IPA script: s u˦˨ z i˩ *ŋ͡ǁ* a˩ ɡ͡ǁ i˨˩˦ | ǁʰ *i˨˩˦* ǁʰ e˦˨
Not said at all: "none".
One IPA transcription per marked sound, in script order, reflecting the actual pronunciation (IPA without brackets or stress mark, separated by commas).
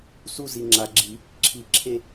ŋ͡ǁ, i˨˩˦